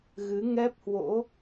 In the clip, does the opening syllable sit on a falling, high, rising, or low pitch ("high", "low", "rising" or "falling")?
rising